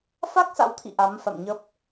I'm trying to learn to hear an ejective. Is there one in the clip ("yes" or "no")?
no